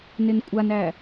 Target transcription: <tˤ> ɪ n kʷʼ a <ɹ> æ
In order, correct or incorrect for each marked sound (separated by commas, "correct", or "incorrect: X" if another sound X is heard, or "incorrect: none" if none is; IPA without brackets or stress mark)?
incorrect: n, incorrect: n